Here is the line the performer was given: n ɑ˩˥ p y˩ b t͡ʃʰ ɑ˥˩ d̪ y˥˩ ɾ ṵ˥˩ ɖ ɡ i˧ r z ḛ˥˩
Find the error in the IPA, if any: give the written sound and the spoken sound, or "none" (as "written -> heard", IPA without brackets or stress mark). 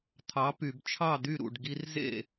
n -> t̪ʰ